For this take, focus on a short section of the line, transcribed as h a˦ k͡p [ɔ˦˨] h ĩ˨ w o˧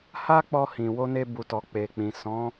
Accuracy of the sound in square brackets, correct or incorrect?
incorrect